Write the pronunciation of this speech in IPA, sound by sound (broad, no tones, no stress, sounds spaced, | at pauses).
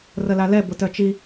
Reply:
r ə l a l ɛ b ʊ t œ t͡ʃ i